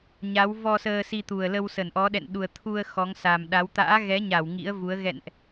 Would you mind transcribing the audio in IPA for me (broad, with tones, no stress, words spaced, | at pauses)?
ɲa˨˦w vɔ˧ səː˧si˧t̪u˨˩ə̯lə˧w sə˧˩nʔɔ˨˦ ɗɛ̰˧˨n ɗu˨˩ə̯t̪ʰu˧ə̯ xɔ˨˦ŋsa˨˩mɗa˨˦w t̪a̰ː˧˥ɣɛ˨˦ɲa˧˩w ŋḭ˧˥ə̯vu˨˦ə̯ ɣɛ̰˧˨nʔ